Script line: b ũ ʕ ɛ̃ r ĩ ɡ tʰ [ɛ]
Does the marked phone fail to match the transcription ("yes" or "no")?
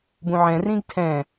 yes